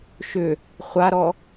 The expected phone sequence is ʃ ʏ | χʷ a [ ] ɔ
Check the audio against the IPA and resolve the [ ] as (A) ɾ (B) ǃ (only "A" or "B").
A